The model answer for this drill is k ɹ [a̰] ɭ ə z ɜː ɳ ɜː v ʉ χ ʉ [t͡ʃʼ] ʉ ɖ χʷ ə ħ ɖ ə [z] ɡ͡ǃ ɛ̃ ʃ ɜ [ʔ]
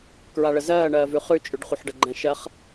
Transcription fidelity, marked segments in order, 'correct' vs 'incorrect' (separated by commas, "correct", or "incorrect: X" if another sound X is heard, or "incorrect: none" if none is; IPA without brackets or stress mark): incorrect: a, correct, incorrect: none, incorrect: χ